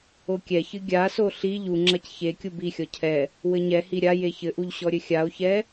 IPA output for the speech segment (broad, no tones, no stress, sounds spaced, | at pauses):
o kʲ ɛ ç ɨ ɡʲ a s o ɬ i ʎ u ŋ͡ǁ ɐ c ç e kʲ u b i xʲ ɔ cʰ ɛ | w ɘ ɲ ɛ h i ɾʲ a j e ç ɘ ʔ u ʎ ɕ ɔ ɾʲ ɘ xʲ a o̯ ç ɛ